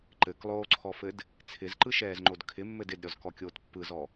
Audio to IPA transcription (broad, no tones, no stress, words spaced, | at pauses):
ǃɘklˠoːǀʰɔfɘd | t͡sʰɪzǃɯʃɛːzŋ͡ǃod kʰɪmːɘd ɪdɾʲɔzkɔkʲoːt pːɯzɔ